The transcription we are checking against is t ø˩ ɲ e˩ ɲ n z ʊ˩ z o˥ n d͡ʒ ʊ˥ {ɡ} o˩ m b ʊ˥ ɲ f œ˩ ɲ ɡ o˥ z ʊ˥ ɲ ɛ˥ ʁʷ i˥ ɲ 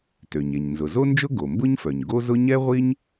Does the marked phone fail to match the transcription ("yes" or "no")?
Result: no